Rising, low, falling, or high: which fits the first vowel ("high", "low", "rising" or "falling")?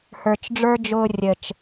low